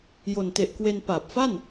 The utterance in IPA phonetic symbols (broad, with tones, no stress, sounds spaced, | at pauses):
j o˨˩ n t e˨˩ ʔ k w e˧ n p aː˨˩ p̚ f a˥˩ n